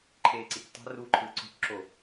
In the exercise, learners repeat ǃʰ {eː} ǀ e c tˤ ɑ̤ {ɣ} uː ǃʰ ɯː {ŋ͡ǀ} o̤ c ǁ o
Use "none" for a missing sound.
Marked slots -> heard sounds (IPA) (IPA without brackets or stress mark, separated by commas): eː, r, ǀ